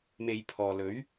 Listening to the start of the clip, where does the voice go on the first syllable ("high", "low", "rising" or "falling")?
low